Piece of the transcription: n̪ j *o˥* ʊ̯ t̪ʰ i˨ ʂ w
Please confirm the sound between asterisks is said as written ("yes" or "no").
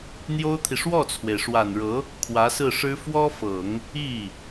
yes